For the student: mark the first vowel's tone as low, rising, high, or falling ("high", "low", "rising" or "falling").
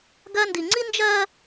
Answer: high